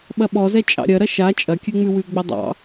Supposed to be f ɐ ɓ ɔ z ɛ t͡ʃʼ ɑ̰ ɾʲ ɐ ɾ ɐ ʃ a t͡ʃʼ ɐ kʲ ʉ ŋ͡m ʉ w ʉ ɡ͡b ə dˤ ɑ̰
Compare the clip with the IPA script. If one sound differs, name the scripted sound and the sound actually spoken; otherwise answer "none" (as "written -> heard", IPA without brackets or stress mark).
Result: f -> ɓ